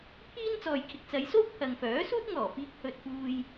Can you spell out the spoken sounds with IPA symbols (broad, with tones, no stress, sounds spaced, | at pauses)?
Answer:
pʰ iː˥ n t͡s ɔː˨ j kʰ ɪ˨ k̚ t͡s ɐ˨˧ j s o˥ w pʰ ɐ˨ ŋ f œː˨˥ s uː˥ t̚ ŋ ɔː˨˩ f iː˧ k̚ h ɵ˧ t̚ f uː˧ j